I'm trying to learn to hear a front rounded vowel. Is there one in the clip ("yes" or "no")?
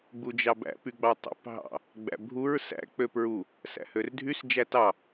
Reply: yes